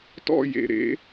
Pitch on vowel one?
falling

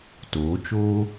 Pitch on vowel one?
rising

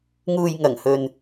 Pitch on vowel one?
low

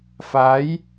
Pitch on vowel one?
rising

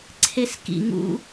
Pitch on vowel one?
high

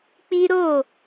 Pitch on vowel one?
high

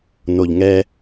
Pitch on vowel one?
low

